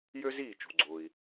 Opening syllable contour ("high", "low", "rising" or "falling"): high